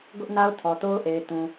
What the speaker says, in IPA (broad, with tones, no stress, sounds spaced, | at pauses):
ɡ ʊ˦ ʔ n a˦ ʊ̯ tʰ ɔ˨ t o˦ ʊ̯ ʔ e˨ ɪ̯ t ũ˨